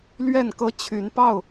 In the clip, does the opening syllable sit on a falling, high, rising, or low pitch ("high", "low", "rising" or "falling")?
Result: falling